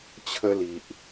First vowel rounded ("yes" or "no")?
no